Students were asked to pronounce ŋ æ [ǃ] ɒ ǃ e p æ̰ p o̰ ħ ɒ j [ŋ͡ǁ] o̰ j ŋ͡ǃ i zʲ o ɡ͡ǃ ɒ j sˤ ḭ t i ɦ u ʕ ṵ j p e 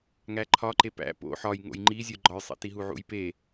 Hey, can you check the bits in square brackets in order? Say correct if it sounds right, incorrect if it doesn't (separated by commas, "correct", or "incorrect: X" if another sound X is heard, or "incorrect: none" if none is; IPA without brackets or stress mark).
incorrect: ǃʰ, incorrect: ŋ